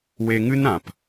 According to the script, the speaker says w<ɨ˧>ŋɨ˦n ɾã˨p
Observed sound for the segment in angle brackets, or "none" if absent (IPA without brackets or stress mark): e˧